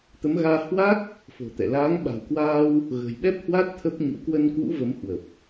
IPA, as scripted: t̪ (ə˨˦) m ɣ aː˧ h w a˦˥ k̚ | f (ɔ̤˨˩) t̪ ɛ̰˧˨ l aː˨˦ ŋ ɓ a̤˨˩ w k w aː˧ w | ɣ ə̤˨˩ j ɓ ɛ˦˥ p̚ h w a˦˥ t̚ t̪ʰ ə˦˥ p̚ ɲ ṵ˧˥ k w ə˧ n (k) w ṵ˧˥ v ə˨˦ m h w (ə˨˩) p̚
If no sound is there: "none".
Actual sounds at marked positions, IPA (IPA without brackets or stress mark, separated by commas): ə˨˦, o̤˨˩, k, ə˨˩